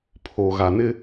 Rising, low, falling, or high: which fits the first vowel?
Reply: low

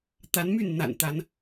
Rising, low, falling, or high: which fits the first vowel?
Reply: rising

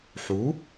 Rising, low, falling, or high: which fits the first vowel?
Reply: rising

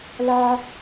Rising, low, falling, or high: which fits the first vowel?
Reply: high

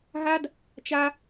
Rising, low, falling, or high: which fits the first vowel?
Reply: high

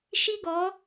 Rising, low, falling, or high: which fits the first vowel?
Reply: high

